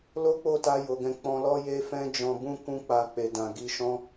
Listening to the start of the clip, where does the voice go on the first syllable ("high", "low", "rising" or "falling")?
high